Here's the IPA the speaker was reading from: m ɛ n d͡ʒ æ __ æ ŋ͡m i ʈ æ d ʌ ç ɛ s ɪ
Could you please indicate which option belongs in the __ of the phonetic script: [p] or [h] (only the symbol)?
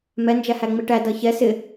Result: h